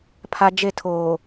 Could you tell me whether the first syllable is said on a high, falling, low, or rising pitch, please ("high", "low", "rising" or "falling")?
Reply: high